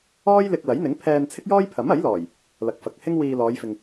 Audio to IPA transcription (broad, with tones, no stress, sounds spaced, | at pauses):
ɔː˥ j l ɪ˧ k̚ l ɐ˨˥ j n̪ ɪ˨˥ ŋ pʰ ɛː˧ n t͡sʰ ɪ˥ k̚ j ɔː˥ j pʰ ɐ˨˥ m ɐ˨˥ j l ɔː˨˩ j | l ɐ˨ k̚ f ɐ˨˥ k̚ h ɪ˥ ŋ w iː˧ l ɔː˨˧ j f ɪ˨ ŋ